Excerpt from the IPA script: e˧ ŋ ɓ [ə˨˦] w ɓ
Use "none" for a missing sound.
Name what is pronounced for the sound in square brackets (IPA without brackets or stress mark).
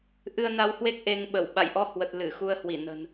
ə˧˩